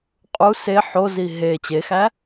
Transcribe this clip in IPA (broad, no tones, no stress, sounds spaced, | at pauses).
qʼ u s e ħ o z i ɦ e t͡ɕ e x æ